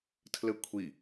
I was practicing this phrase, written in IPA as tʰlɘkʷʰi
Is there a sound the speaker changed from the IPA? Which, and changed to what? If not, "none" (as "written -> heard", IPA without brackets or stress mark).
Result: none